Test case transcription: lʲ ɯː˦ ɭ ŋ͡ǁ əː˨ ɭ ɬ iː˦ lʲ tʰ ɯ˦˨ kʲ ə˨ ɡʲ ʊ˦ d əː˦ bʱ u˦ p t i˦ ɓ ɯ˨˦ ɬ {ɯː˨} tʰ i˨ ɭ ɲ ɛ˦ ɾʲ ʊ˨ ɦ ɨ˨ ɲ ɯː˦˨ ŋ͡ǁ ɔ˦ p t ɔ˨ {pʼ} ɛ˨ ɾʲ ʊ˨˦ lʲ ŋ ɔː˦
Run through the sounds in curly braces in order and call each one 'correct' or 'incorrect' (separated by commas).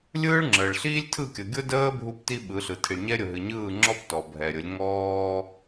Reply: incorrect, incorrect